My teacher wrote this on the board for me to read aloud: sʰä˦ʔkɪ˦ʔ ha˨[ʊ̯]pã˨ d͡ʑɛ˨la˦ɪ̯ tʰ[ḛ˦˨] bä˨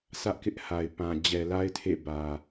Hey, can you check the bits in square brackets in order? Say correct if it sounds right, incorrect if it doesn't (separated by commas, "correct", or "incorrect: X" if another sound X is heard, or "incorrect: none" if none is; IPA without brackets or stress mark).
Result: incorrect: ɪ̯, correct